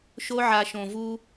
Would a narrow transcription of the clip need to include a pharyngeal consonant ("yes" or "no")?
yes